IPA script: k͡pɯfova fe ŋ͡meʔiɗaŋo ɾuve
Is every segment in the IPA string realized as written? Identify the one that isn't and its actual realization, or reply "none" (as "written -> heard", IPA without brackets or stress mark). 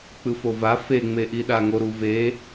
none